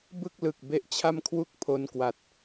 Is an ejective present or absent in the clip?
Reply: absent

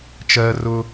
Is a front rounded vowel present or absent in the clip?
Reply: absent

